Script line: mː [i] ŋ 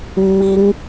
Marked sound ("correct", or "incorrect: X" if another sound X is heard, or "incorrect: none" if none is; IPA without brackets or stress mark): correct